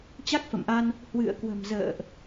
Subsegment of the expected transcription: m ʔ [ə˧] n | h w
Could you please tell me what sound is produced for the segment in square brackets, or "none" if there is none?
a˧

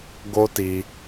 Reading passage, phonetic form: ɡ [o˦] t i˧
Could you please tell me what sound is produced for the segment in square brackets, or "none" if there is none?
o˦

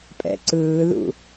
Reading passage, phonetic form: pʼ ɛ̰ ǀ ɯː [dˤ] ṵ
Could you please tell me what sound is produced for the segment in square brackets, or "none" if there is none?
ð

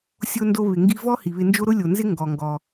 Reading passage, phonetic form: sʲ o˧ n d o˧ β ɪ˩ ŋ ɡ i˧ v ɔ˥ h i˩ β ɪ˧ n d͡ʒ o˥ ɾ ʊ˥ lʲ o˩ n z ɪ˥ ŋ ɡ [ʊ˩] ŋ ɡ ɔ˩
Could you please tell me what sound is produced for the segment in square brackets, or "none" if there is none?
ɔ˩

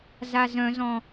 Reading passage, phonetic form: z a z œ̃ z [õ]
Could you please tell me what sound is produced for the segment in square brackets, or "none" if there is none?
ɔ̃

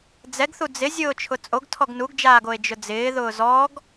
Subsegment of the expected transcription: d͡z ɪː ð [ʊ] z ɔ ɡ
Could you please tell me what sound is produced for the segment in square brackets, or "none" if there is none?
ʊː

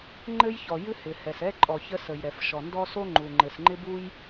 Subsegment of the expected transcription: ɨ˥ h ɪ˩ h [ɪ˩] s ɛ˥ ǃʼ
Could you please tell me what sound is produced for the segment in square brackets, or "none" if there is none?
ɛ˩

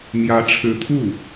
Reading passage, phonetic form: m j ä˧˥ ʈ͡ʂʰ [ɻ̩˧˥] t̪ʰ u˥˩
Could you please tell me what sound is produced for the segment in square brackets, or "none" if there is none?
ɻ̩˧˥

